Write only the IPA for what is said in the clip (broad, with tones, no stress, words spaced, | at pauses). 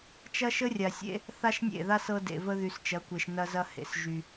t͡ʃɐ˦ʃə˦rʲa˨sʲḛ˦ | θa˦ʃnʲḛ˦˨ða˦s ɤ˦dḛ˨və˦ ðy˨st͡ʃɐ˨˦kʷe˨ʃ nɐ˦zɐ˦ hḛ˨sʒy˦